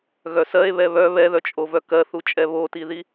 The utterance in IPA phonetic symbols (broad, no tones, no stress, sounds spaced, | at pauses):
ɣ œ s ɜ e̯ β ɛ β œ β ɛ ð œ t͡ʃʼ o v œ k ɜ θ u t͡ʃʼ ɛ β o t i ð i